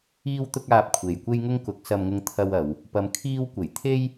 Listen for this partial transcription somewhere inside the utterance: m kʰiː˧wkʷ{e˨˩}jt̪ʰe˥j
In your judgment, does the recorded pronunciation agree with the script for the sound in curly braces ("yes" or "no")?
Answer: yes